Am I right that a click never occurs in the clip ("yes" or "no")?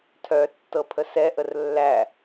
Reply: yes